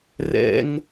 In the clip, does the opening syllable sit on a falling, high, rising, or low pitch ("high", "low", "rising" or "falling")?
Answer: high